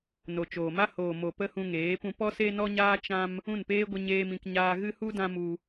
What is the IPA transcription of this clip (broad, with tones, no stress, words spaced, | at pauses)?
no˨t͡ʃoː˨ma˦ hoː˨mo˨ pə˦hũ˧ŋeː˨˦pũ˧ pɔ˦se˦nɔ˦ɲaː˦ t͡ʃã˦m | ũ˦˨npeː˦ ɡʷə˦ɲeː˦mĩ˧k ɲaː˧ɣɨ˦hu˦ dã˦mu˧